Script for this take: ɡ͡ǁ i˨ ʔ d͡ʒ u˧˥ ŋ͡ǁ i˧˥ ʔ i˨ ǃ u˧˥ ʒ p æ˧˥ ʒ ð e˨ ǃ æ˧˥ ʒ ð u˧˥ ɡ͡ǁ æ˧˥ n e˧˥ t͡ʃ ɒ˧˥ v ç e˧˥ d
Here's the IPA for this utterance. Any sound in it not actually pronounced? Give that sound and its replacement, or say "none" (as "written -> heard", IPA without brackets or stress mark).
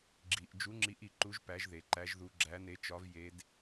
ç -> j